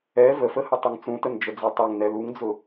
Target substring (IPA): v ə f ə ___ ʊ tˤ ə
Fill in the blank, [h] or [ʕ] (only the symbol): h